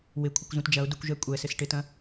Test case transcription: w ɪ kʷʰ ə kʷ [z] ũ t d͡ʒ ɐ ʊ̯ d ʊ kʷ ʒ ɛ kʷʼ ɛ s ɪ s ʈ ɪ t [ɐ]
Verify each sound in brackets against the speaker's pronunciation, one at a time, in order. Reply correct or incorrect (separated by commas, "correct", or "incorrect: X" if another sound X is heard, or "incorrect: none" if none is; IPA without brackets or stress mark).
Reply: correct, incorrect: ɐ̃